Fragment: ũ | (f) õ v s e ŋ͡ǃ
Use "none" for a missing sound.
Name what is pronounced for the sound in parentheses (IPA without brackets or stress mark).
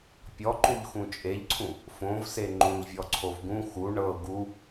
f